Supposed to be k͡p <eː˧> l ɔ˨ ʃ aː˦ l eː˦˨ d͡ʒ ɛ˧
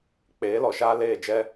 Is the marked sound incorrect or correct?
incorrect